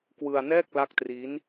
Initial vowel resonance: oral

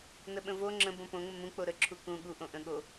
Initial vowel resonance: oral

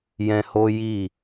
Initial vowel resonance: nasal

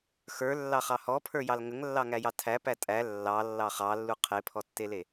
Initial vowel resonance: oral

